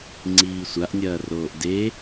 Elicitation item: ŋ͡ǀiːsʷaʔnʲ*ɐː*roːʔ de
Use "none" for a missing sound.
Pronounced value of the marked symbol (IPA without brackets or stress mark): ɐː